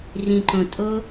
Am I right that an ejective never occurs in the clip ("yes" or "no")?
no